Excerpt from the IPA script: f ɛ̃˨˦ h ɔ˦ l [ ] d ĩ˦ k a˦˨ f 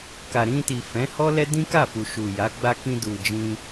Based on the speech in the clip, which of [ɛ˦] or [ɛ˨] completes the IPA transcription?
ɛ˦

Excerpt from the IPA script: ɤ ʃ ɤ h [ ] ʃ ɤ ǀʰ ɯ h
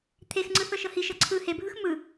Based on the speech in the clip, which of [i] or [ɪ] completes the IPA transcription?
i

